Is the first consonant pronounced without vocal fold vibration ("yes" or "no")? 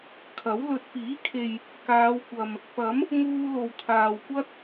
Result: yes